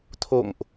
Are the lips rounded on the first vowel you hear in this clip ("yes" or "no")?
yes